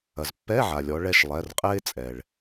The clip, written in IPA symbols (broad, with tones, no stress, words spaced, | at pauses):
ɐ˩zpːɛ˧˥˧ʕa˩lʲɔ˩˧ ɭɛ˦˨ʃlˠɛ˩˧˩rqʼɛ˥ɪ̯ t͡sʼɛ˩ɭ